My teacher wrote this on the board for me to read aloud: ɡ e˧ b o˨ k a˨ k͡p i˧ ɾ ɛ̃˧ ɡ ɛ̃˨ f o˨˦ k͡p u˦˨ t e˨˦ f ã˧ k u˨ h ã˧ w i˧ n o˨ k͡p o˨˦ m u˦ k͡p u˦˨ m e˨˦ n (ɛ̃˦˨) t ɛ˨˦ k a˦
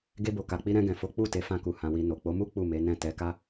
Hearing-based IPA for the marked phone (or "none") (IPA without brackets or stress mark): ɛ̃˦˨